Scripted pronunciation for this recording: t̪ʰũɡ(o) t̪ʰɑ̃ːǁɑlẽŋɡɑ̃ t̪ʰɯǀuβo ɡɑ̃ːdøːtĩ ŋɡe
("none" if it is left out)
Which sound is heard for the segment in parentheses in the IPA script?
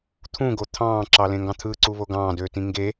o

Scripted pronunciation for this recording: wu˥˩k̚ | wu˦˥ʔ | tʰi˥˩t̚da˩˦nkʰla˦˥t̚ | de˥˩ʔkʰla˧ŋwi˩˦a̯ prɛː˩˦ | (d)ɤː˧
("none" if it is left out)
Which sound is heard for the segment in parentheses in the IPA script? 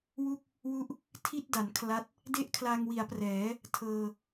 tʰ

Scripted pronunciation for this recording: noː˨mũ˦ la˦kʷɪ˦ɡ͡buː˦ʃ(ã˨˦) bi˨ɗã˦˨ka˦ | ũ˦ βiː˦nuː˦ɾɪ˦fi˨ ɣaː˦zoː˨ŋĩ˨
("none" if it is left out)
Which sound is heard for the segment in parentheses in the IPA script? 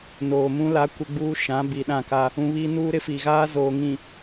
ã˨˦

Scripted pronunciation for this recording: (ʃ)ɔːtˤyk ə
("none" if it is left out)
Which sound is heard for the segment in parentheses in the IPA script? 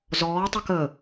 z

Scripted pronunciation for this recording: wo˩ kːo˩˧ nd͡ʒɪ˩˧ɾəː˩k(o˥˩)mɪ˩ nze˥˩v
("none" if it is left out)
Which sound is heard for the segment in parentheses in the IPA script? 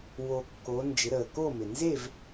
o˥˩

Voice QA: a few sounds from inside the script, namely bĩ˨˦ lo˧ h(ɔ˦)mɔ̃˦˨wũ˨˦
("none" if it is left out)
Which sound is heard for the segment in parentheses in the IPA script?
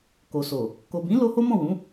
o˦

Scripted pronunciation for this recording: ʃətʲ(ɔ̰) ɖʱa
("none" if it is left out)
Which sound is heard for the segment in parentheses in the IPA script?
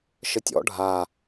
ɔ̰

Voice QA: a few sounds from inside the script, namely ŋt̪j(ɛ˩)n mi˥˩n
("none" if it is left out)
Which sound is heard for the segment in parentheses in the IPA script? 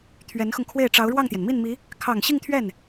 ɛ˩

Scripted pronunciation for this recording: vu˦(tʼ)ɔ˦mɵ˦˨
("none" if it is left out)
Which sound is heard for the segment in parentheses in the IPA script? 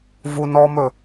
n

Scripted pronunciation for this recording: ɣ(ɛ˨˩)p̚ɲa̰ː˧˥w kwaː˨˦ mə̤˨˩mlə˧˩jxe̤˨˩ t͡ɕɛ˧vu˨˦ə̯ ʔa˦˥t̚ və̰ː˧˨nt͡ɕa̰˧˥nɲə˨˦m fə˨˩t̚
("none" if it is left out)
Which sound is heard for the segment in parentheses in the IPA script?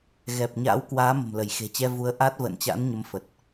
ɛ˨˩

